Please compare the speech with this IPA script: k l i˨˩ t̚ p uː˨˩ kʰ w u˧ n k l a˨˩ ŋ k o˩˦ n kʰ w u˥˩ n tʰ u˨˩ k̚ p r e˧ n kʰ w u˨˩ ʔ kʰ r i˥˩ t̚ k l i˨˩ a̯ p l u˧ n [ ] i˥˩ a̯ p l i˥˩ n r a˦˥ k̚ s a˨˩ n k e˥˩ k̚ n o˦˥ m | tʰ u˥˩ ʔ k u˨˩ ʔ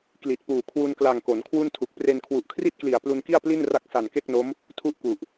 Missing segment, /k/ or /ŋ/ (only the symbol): k